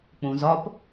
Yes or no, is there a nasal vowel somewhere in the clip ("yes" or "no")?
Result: yes